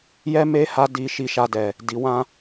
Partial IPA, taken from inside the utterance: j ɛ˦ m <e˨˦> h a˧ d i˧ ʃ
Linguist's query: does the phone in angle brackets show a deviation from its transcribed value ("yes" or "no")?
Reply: yes